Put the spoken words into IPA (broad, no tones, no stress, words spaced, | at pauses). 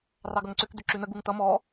rɑɡʌŋǀʏkd̪ʏ ǁʉnəɡuŋ t̪ʌ mɔ